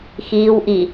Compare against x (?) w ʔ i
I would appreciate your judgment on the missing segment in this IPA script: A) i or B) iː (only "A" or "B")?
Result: B